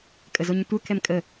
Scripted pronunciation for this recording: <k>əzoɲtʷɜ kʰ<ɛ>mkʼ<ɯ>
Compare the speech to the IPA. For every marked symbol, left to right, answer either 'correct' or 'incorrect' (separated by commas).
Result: incorrect, correct, incorrect